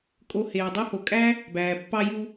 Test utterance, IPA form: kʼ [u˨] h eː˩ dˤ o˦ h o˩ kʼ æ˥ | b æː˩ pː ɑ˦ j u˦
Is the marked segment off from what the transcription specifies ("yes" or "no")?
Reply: yes